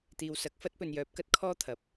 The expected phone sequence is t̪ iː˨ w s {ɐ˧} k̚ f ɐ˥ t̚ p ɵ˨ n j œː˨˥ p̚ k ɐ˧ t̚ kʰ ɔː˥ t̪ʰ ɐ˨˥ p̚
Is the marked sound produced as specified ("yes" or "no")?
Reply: no